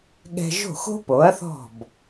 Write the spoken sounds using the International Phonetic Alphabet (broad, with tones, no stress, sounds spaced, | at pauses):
ɠ ɛ̤˧ ʒ o̤˥˩ x o̤˥ p o˩˥ ɐ̯ θ ɔ̤˥˩ b